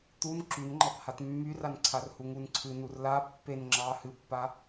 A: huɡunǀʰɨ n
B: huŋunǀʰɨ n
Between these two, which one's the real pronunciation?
B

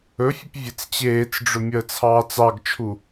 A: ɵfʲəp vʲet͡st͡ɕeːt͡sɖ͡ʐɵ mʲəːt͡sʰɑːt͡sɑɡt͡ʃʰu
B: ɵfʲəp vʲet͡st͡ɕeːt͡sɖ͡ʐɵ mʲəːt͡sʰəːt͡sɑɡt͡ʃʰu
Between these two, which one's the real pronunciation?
A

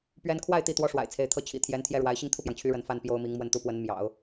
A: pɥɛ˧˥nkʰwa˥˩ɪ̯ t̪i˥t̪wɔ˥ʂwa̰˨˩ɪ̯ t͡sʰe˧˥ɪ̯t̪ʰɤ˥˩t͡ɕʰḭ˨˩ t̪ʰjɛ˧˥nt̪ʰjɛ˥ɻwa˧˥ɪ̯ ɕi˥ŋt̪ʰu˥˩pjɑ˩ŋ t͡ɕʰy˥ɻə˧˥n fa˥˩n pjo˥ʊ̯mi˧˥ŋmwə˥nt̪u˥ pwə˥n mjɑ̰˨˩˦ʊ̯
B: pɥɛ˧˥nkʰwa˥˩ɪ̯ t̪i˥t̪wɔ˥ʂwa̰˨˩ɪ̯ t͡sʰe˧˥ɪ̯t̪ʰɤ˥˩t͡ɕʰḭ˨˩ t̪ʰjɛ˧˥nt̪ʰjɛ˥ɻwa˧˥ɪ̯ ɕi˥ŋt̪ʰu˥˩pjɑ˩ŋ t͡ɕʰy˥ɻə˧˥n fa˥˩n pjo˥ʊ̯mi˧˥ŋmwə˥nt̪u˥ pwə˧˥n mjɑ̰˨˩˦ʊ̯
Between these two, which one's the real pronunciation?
B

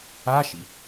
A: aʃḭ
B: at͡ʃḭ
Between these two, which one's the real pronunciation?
A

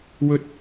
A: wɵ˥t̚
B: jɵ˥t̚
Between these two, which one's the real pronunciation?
A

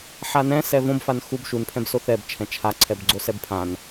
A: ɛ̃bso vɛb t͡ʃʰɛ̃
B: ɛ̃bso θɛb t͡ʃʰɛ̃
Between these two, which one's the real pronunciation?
B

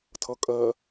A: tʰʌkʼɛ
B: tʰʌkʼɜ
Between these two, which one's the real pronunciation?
B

